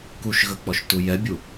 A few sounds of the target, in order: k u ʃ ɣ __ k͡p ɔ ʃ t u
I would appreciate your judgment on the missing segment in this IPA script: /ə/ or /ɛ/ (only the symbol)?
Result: ə